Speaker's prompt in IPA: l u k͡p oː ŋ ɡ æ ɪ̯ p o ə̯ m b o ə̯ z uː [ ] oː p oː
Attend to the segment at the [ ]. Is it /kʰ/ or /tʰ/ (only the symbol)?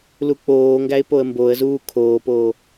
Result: kʰ